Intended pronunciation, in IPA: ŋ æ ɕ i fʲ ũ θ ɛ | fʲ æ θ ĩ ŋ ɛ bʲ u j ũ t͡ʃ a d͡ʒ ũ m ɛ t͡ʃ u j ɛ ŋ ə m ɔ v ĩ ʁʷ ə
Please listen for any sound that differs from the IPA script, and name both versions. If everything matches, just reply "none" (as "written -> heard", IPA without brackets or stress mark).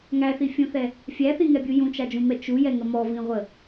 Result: ɕ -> θ